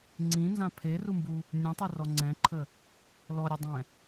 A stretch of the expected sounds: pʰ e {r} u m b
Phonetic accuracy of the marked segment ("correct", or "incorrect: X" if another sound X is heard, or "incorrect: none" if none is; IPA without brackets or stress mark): correct